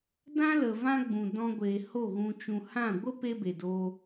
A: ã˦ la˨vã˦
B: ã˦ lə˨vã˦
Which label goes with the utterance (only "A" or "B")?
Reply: B